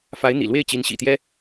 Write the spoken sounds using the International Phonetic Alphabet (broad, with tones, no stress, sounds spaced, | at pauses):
f a˧˥ ɪ̯ n̪ ḭ˨˩ l w e˥˩ ɪ̯ t͡ɕ i˧˥ n ɕ ḭ˨˩ t̪ j ɛ˥